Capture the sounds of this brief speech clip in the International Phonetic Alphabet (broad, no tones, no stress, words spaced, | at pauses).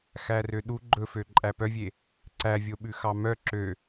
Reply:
xærøɗu ɡ͡ǃɵfø ǃʼæpœvʲe | ǀævʲoɓʉ xɑmœ ǁø